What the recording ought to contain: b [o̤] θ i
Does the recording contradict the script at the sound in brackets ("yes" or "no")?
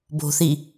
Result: no